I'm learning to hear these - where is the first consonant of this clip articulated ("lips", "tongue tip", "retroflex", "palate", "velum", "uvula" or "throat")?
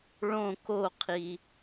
retroflex